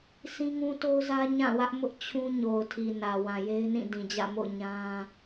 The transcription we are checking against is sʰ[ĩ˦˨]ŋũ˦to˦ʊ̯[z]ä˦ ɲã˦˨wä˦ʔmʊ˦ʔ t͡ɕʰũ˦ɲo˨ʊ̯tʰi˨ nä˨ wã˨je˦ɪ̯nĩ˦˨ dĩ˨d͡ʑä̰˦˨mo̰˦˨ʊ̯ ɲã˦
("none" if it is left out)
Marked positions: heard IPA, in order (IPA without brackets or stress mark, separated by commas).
ĩ˦, z